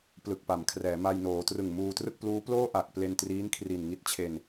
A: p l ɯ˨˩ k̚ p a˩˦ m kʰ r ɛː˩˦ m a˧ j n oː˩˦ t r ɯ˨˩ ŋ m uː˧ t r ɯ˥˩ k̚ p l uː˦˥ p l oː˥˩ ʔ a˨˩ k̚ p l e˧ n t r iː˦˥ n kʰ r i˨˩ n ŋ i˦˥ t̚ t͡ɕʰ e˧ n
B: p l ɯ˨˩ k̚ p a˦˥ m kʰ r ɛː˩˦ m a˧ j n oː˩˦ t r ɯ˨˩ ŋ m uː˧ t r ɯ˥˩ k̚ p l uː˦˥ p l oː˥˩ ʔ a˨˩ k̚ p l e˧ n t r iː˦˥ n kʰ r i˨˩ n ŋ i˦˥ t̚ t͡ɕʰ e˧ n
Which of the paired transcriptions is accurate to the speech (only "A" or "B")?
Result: A